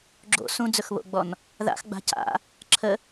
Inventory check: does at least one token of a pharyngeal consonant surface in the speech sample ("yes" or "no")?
no